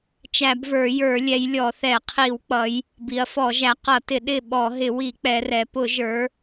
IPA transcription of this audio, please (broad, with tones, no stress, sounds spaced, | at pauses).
t͡ʃ æ˧˩˧ b v ə˞˧˩˧ j ə˞˧˩˧ lʲ ɛ˩˧ j lʲ ɔ˧˩˧ θ ɛ˧˩˧ qʰ i˧˩˧ w k͡p ʌ˩˧ j | b i˩˧ ɐ̯ f ɔ˧˩˧ ʒ æ˩˧ q ʌ˧˩˧ t ɪ˧˩˧ ɗ ɪ˦˨ ɓ ɔ˧˩˧ ɦ ɪ˧˩˧ w i˧˩˧ k͡p ɛ˩˧ r ɛ˩˧ p ʊ˧˩˧ ʒ ə˞˩˧